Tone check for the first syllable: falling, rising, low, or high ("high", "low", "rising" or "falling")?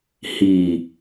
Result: low